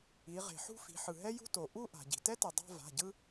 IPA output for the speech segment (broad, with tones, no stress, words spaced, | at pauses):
i˩˧ ʁe̤˩ħṳ˥˧fi̤˩˧ ħɯ˩ɦɛ˥ jṳ˥to˩ ʔu˥˧ ʔa̤˩ɟi̤˩ tɛ˥ti˩ dˤa̤˥˧va̤˩˧˩ɟɯ˥